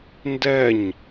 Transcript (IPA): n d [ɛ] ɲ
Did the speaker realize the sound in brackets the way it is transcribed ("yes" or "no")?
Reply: yes